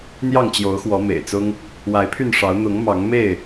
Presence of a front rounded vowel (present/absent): present